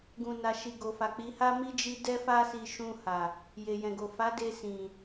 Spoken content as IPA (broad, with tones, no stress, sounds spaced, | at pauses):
ɡ ũ˨ n a˨ ʃ i˨ ɡ o˨ f a˨ k͡p i˨˦ h a˦ m i˦ d͡ʒ i˧ d ɛ˦ f a˦ s i˧ ʃ ũ˧ h a˨ | j e˨ j ɛ̃˨ ɡ o˨ f a˨˦ d e˧ s ĩ˨